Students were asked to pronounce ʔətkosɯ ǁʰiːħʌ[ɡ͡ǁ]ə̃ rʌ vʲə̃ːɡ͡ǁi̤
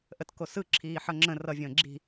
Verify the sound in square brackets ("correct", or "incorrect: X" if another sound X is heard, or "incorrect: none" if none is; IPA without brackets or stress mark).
incorrect: ŋ͡ǁ